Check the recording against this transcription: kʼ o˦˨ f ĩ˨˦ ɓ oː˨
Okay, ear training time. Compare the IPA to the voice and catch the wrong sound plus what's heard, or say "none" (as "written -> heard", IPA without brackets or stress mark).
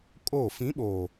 none